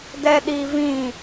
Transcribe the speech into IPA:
d ɛ ɗ i v ĩ

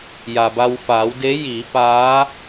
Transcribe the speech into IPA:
j a˩ b a˧ w f aː˩˧ w d e˧˥ j iː˩˧ p aː˧˥

